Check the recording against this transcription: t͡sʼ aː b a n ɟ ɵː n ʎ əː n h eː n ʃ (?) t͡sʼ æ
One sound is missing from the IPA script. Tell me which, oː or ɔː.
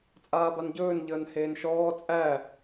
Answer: ɔː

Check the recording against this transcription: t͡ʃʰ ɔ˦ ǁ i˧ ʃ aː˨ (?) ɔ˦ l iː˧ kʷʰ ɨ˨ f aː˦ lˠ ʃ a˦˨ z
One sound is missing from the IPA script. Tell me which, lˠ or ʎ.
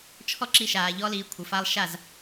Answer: ʎ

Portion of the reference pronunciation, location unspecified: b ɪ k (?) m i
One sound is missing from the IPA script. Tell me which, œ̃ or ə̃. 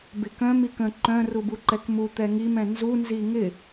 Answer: œ̃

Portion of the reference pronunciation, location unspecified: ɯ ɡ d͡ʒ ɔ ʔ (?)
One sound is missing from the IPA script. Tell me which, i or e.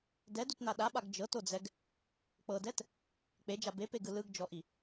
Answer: i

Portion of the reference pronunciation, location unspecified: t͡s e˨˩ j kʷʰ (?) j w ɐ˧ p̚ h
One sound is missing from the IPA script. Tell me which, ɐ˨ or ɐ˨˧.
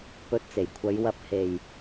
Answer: ɐ˨˧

